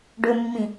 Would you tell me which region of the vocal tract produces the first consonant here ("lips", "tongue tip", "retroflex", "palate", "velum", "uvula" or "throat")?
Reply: retroflex